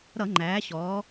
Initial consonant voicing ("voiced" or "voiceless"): voiced